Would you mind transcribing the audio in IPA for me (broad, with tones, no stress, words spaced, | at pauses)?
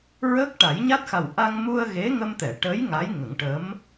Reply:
ɹəː˦˥k̚ʈa˨˩˦jɲa˦˥t̚xa˨˩w ʔa˧ŋmu˧ə̯ ɣe˧˥ŋə˧mt̪ɛ˨˩˨ ʈə˧˥j ŋa˧˥j ŋə˨˩˦ŋʈə˧˥m